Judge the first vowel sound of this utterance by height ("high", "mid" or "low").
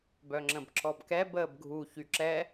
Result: mid